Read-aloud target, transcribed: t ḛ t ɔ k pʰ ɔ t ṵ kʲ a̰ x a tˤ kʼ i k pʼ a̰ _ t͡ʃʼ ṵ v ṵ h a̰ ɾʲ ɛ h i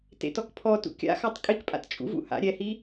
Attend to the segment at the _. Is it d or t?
t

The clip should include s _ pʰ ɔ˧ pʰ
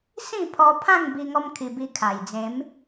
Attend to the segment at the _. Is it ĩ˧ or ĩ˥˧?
ĩ˥˧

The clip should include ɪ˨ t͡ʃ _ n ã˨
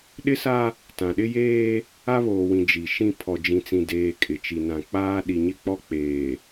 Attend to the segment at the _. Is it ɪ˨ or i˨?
i˨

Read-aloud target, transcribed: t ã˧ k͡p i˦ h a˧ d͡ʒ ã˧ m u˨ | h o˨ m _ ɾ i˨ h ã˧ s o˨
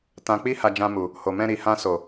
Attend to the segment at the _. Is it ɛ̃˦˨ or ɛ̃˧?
ɛ̃˧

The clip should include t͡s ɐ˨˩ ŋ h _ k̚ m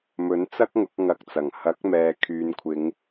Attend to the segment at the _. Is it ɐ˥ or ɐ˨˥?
ɐ˨˥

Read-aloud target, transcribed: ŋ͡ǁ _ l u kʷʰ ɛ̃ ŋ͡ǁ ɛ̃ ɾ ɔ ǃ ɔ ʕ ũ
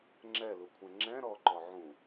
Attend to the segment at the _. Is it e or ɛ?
ɛ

